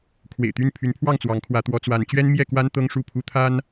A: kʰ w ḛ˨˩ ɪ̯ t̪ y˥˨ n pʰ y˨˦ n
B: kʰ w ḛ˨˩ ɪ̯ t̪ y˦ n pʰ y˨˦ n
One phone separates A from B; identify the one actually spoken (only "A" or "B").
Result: A